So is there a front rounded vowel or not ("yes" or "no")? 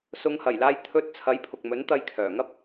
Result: yes